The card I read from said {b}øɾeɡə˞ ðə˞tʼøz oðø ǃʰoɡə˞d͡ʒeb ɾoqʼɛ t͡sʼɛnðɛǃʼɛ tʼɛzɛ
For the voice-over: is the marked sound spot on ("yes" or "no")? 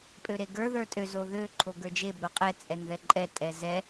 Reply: no